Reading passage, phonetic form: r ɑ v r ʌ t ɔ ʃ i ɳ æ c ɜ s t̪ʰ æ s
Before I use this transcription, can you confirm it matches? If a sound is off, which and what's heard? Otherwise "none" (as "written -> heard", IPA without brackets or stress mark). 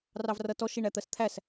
c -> t̪